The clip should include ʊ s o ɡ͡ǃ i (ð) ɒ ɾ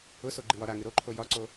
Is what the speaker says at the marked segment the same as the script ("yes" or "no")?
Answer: no